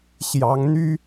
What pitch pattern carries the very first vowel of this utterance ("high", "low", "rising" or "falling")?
rising